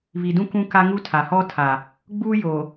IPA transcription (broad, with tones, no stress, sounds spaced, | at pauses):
β i˨ d ũ˦ k ũ˦ k a˦ ŋ u˦ tʰ a˨ h ɔ˦ tʰ a˨ | ɡ͡b uː˦ j oː˨